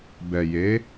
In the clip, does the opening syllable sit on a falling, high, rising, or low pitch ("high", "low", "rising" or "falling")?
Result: low